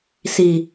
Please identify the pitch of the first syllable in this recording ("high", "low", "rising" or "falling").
low